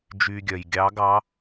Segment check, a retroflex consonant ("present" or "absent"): absent